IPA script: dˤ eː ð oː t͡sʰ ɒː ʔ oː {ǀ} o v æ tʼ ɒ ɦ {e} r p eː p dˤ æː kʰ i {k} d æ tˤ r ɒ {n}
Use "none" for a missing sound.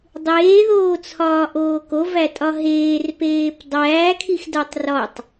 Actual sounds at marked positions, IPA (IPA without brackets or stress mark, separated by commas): k, eː, x, tˤ